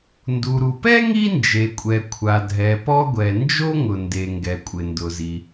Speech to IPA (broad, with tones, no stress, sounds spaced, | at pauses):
n d u˩ ɾ u˩ p ɛ˥ ŋ i˥ n d͡ʒ e˩ kʷʼ ɛ˩ kʷʰ a˩ dʱ ɛ˩ p ɔ˥ ɡʷ ɛ˩ n d͡ʒ o˥ ŋ ʊ˩ n d e˩ ŋ ɡ ɛ˩ kʷʼ ɪ˩ n d ʊ˩ z i˩